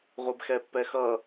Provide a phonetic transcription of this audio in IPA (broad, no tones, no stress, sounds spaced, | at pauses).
ʁʷ ɛ b x ɛ pː ɛ x ʌ